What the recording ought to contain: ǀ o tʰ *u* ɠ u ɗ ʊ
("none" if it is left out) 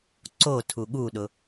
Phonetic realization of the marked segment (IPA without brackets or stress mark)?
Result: u